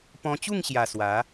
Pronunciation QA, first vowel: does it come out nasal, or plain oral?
nasal